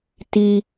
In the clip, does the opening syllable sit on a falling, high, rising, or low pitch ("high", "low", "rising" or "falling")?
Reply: high